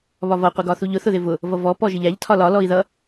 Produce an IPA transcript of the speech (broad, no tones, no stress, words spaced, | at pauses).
βɒvʌ qʷɪɡɒθuʎʊ θʊðɪvʊ | vʌvɔ pɔʒɪʎæʎ tʰɒlɒ lɔi̯ðʌ